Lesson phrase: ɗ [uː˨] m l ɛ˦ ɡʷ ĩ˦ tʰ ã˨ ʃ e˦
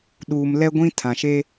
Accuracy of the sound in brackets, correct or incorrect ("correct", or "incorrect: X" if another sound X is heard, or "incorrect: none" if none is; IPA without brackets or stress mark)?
correct